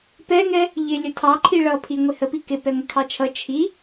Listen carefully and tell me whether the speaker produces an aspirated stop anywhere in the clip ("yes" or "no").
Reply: yes